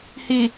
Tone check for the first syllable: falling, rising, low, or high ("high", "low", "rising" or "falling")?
low